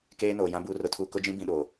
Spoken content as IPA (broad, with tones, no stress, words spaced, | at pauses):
keː˦noː˨jã˦ buː˦rʊ˨˦tʰuː˦ kʊ˦d͡ʒĩ˦ bĩ˦ɗo˨